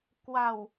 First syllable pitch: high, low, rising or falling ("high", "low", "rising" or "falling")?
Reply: low